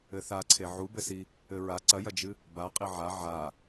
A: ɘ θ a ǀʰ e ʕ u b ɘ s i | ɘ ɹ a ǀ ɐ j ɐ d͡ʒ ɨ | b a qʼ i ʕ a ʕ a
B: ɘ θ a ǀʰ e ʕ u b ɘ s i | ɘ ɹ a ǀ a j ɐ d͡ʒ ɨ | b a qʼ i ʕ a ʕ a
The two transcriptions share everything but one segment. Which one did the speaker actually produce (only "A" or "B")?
A